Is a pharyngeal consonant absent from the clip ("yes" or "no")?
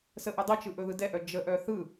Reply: yes